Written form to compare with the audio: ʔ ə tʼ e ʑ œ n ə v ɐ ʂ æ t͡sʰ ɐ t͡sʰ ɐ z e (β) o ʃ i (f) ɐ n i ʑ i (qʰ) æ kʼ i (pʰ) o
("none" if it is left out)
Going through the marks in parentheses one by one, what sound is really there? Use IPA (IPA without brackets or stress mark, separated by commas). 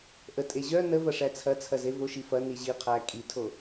v, f, qʰ, tʰ